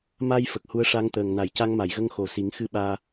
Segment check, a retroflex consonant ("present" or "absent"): present